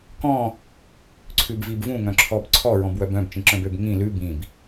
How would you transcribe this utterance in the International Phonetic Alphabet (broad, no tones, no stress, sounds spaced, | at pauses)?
k ɔ̃ | ǀʰ ʉ b v i b v ũ ŋ œ̃ ǁʰ ɔ b ǀʰ ɔ ɹ ɔ̃ b w œ b œ̃ b t͡ʃ ĩ ǁ œ̃ b ø b ŋ ĩ l ʉ b ĩ b